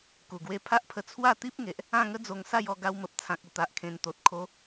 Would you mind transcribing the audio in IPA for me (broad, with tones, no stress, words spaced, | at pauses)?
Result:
ku˨˩ɡwe˧pʰa˦ʔpʰə˧ t͡sʰwa˥˧ t̪i˦p̚ŋe˨ʔ | ã˥˧ŋə˦d͡zo˧ŋ sa˥˧jɔ˧ ɡa˧wmə˨p̚t͡sʰã˨k̚ ə˨˩t̪a˨ʔkʰẽ˨˩nt̪o˨t̚ kʰo˧